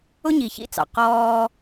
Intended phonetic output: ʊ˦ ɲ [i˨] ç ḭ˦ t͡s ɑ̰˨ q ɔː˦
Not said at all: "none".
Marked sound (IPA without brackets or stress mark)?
i˨